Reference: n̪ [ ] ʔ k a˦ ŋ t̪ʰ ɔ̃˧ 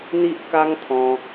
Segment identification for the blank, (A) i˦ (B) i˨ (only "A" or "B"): A